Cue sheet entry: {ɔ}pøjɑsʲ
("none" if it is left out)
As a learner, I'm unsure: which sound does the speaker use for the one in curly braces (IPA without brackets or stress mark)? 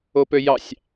o